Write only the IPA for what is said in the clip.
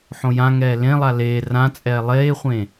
ħ õ j ã ŋ ɛː l ẽ lˠ a l eː r ã t͡sʼ ɛː lˠ eː χʷ ẽ

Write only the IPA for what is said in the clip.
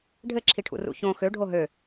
ɖʱ ɘ ǁʰ i ʈʰ ṵ r ṵ ç õ x ø ɖʱ o ɦ ø

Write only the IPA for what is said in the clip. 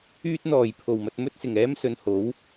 yː˥ t̚ n̪ ɔː˨˩ j pʰ o˨˩ w m ɐ˧ t̚ m ɵ˥ t̚ s ɪ˨˩ ŋ ɛː˥ m s ɵ˨ n h o˨˥ w

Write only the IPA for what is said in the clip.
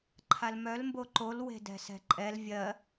ǃʰ a l m œ l m b o ǃ o l w e̤ d ɛ̤ s ɛ̤ ǃʼ ɛ l vʲ ɜ

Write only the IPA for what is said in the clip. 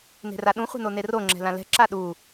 n e̤ r a ɗ ũ χʷ e̤ n o n e r o ŋ͡ǁ ɛ̤ l ã l ɛ̤ ǁ a ɗ u

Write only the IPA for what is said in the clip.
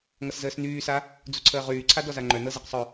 ŋ ʌ s z əː s n yː s a | d͡z u ǀʰ əː ʁ yː ǀʰ a d ɔ z a ŋ͡ǃ œ n ɤ z ə q sˤ œ

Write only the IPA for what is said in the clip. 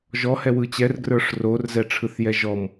ʒ ɔ h ɛ w ɯ t͡ɕ ɛ r ɡ r ə˞ ʂ r o r z ɛ ʈ͡ʂʰ ɯ θ j ɛ ʒ ɔ m

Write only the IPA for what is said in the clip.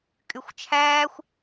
kʼ y xʷ t͡ʃʰ æː xʷ

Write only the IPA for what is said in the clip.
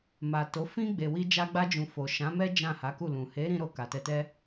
m a˨ t o˨˦ f ĩ˦ ɡ͡b e˧ w i˦ d͡ʒ a˧ ɡ͡b a˧ d͡ʒ ũ˨ f o˨ ʃ ã˨˦ m ɛ˦ d͡ʒ ã˦˨ h a˨˦ k u˦˨ l ũ˨ h e˨˦ ɾ ĩ˧ ɾ o˨ k a˨ t ɛ˧ t ɛ˦

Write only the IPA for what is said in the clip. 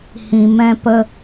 h ĩ˨ m ɛ̃˧ p ə˧

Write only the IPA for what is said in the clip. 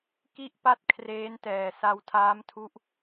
k i˥˩ ʔ p a˥˩ t̚ kʰ r eː˦˥ n t ɛː˨˩ s a˧ w tʰ aː˦˥ m tʰ u˦˥ ʔ

